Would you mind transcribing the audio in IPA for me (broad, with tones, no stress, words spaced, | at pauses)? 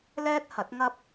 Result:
lɛː˥t̚hɐ˨˥t̚ŋɐ˥p̚